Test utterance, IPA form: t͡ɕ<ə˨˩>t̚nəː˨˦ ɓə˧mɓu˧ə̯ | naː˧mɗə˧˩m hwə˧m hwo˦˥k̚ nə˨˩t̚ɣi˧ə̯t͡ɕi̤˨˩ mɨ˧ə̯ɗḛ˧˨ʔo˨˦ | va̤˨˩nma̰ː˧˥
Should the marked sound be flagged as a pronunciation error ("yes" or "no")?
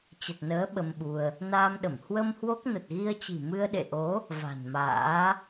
no